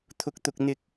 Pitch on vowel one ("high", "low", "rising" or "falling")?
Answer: high